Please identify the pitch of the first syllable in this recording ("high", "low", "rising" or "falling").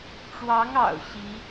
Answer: rising